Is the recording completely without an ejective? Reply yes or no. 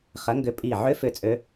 no